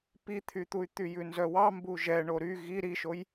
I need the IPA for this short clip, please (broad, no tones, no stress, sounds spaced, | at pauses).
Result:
p i t̪ʰ y t̪ u y̯ t̪ y j ʉ n z œ w ɑ m b u ʒ ɛ ɳ o ɾ y ɣ i ɾ i ʃ o j